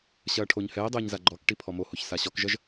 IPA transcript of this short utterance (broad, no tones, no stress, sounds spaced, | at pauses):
ɕ ɐː ʈʰ o ɲ h ɛː dˤ ɘː ɲ z a ɡ͡ǃ ɔ k ʈ i pʰ ɔ m o h o ç s a ɕ ɔ k ʒ ɐ ʒ